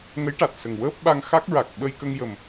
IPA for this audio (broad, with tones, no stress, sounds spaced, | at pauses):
ŋ ə˧˥ j ʈ a˨˩ t̚ s ə˨˩ ŋ w əː˦˥ p̚ ɓ a˧ ŋ x a˦˥ k̚ ɹ a˨˩ k̚ ɓ ə˧ j k ə˧ ŋ j ə˨˩ m